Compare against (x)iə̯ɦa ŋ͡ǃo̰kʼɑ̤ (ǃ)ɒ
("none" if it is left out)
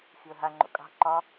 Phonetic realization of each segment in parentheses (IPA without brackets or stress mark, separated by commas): x, ǃ